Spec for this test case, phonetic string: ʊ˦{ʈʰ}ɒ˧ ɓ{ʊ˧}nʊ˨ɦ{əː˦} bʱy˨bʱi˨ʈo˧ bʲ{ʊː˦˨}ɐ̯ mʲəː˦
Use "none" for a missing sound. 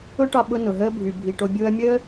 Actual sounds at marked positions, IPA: ʈ, ʊ˧, əː˧, ʊː˧

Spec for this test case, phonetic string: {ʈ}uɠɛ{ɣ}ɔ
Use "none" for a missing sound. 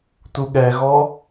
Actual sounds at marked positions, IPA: t, ɣ

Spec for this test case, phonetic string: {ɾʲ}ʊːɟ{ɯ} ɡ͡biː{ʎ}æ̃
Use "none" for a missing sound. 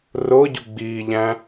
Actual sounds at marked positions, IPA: r, u, ʎ

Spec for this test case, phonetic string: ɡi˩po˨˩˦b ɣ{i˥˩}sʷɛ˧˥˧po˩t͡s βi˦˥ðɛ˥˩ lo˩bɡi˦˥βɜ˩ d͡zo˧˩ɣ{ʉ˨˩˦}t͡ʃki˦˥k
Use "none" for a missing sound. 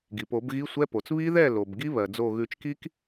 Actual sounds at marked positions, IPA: i˧˥˧, ʉ˨˩˦

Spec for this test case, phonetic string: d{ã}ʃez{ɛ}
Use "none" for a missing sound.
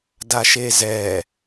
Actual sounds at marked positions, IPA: a, ɛ

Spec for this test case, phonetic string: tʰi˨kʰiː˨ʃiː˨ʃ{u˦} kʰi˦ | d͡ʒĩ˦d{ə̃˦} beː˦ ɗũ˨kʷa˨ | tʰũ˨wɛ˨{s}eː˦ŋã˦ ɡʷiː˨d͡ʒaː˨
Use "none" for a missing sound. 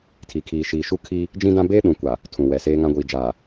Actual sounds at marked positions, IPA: u˦, ã˦, s

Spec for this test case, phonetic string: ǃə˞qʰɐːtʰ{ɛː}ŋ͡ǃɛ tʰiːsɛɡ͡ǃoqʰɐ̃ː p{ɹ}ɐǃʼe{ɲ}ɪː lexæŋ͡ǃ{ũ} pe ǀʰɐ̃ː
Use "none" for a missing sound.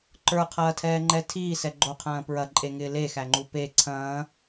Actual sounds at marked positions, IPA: ɛː, ɹ, ŋ, u

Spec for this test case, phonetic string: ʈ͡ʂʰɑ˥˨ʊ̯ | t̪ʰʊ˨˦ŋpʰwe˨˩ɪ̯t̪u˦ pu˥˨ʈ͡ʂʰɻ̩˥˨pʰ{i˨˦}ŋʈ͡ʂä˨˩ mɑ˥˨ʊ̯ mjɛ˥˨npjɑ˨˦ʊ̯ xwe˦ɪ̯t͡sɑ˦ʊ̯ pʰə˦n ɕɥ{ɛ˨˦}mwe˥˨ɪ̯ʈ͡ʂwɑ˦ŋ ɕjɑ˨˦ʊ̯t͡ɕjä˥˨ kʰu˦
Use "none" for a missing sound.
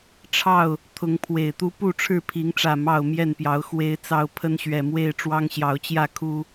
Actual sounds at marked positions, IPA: i˨˦, ɛ˨˩

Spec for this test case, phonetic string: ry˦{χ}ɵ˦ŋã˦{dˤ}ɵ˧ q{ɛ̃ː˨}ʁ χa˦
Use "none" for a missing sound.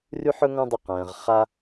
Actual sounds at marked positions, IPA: ħ, dˤ, ɛ̃ː˨

